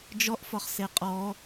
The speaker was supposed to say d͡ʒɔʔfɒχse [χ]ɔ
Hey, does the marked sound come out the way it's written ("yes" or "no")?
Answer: no